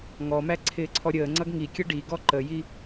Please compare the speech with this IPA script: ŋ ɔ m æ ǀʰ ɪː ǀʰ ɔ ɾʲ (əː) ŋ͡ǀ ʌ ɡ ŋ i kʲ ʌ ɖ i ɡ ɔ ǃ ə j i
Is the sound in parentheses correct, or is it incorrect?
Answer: correct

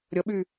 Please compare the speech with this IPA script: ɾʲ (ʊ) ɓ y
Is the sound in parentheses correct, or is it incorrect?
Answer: incorrect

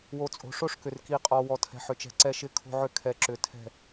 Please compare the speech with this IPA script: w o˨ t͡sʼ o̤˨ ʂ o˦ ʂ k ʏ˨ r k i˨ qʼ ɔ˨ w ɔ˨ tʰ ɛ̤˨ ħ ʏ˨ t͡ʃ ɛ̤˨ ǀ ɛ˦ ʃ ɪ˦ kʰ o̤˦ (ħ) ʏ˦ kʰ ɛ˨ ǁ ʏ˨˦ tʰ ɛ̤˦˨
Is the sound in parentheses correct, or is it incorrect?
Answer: incorrect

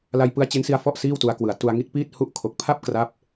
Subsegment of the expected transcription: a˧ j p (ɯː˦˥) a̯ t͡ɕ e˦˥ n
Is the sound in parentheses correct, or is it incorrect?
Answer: incorrect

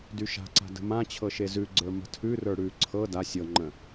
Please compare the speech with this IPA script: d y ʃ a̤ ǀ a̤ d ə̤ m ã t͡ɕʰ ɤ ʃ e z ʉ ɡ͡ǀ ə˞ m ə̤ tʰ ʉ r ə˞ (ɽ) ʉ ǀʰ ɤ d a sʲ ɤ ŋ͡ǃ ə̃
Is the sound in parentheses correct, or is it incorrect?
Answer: correct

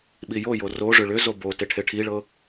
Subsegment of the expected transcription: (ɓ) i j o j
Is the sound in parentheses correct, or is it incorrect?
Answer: correct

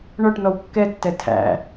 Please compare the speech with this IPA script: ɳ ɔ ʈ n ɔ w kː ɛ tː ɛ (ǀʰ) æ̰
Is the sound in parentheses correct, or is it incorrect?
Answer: incorrect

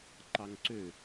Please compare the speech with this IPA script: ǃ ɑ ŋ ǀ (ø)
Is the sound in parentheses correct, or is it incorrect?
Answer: correct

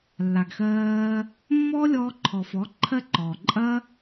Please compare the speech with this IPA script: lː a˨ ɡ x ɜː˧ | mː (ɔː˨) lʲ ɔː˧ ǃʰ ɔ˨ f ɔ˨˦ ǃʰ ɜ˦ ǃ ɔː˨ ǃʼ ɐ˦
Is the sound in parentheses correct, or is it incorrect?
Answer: incorrect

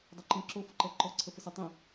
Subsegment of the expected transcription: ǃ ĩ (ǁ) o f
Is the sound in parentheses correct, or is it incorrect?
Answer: correct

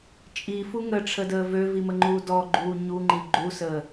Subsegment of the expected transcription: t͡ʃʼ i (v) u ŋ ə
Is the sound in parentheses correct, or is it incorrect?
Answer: incorrect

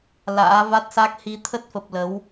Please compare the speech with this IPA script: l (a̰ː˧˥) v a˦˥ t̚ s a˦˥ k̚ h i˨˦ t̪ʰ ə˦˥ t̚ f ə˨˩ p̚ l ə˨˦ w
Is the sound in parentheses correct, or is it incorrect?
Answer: correct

